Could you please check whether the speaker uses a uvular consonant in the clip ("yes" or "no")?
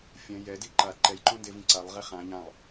yes